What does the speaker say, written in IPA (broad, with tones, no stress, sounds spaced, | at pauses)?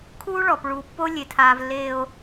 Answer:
kʰ uː˦ ɭ ɔ˨ p ɭ uː˨ pː o˦ lʲ e˨ tʰ aː˨ v lː eː˨ o̯